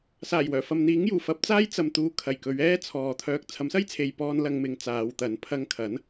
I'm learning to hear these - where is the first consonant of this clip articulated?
tongue tip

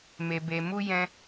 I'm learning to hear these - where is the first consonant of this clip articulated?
lips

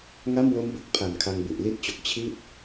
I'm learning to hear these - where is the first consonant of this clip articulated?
velum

